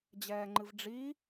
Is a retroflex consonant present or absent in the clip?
present